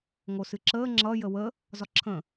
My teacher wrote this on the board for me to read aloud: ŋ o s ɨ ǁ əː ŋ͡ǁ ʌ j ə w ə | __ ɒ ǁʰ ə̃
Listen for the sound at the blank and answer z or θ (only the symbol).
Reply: z